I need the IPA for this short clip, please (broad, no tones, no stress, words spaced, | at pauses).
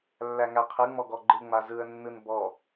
lːæŋæqʰɯ ŋ͡mɔɡɔɡ͡ǃɯ ŋ͡mazɯə̯ nːɯnbɔ